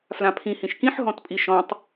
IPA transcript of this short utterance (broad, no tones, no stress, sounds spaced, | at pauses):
f l ã pʰ ĩ h ĩ ʃ k ĩ ħ ɦ ɔ̃ t pʼ i ʃ ɔ̃ tˤ